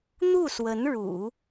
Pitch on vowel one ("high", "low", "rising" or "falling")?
falling